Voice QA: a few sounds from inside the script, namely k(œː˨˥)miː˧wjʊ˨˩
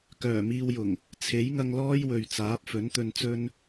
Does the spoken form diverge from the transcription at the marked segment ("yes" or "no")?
yes